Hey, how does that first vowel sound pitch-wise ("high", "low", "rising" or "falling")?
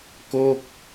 falling